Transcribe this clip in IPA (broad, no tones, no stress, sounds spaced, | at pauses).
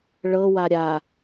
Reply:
ɭ ɤ w a ɾʲ a